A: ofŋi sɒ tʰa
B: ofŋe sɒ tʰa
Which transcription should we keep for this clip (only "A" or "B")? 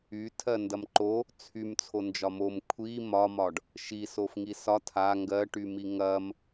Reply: A